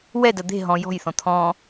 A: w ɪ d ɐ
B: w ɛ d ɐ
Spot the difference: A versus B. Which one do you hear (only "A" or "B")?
B